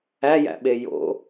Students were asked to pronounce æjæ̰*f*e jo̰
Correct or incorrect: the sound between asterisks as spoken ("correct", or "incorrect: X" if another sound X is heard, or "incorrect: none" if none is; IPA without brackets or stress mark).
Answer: incorrect: ɓ